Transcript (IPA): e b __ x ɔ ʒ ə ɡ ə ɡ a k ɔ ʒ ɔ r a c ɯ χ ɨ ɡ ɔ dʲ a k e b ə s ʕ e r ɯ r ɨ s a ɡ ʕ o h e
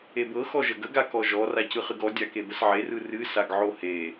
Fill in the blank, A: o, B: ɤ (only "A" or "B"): B